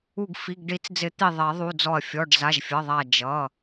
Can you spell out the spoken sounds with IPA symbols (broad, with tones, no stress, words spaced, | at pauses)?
u˧˩ɡfi˩˧˩ɡɖi˨˩˦t͡sd͡zɪ˨˩˦ t̪i˧˩ ðˤɛ˨˩˦ðˤu˩˧˩d͡zɔ˧˩ɐ̯ fʲɔ˩˧˩ɖ za˩˧˩ʒfʲʌ˩˧˩ðˤa˧˩ d͡ʒʌ˩˧˩